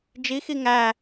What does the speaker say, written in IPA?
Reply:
d͡ʒ i x i ŋ æ

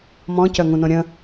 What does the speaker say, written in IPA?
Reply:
m ɔ̃ c œ ŋ ũ n õ ɾʲ ə̃

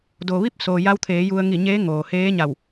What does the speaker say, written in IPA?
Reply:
d o˩ ʋ i˥˨ p̚ s oː˩ j a˧ w t̪ʰ eː˩˧ j u˧ ə̯ ŋ i˧˩ ɲ eː˧˥ ŋ oː˩ h eː˧˥ ɲ a˧˩ w

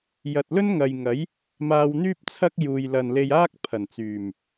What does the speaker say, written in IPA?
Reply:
j ɐ˨ t̚ l ɵ˥ n ŋ ɐ˨ j ŋ ɐ˨˥ j | m aː˧ w n̪ yː˥ p̚ t͡sʰ ɐ˥ k̚ j uː˨ j l ɐ˨ n l e˧ j aː˥ k̚ pʰ ɐ˨˩ n t͡s yː˨˩ m

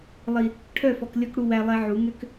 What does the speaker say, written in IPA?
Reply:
lˠ i˨ | ʈʰ œ˦˨ f ɔ˨ k lʲ ɔ˦ k ɽ u˦ w æ˦ lˠ ɛ˦ ʕ u˨˦ ŋ ø˦ k

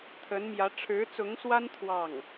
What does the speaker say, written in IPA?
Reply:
t̪ʰ ə˧˥ n m j ä˧˥ ʈ͡ʂʰ ɻ̩˧˥ t͡s ʊ˧˥ ŋ s w a˥ n t̪ʰ w ɑ˥˩ ŋ

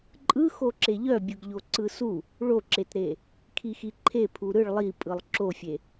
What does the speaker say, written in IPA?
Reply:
ǃʼ ɯ x o ǁ e ʎ œ bʲ ɯ ɡ ʎ o ǀ ɯ s u | ɭ o ǁ e t ɾ e | kʰ i x i ǃʰ e pʰ u ɾ ɯ ɭ lˠ i pʼ ɯ lˠ ǁ o fʲ e

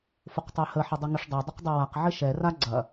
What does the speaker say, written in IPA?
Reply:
f ʊ q tˤ e h ə ħ ɪ dˤ e ŋ ʊ ʂ dˤ ɛ dˤ ʊ q dˤ e w a q ʕ ɪ ʃ ɛ r a ɡ͡ǀ ɐ

